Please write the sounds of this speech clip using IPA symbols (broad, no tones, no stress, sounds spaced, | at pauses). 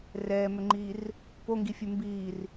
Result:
r ɛː m ʏ ŋ͡ǃ iː r | p o ŋ ɡ i fʲ ʉ m b iː r